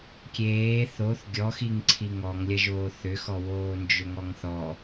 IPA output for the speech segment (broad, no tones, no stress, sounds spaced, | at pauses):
kʲ eː θ o θ ɡʲ ɔ x i ŋ ǀʰ i ŋ ɔ ŋ lʲ ɐ ʒ oː θ ʏ x ɔ w oː n d͡ʒ ʏ ŋ ɔ ŋ θ ɔ